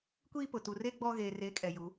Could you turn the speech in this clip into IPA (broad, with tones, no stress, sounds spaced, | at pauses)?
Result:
kʷ iː˦ p ʊ˨ t u˨ r e˦ ɡ͡b ɔ˦ ɣ eː˨ r e˨˦ kʼ ɛ˨ j u˨˦